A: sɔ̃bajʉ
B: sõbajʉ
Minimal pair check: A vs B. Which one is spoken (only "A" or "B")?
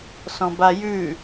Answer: A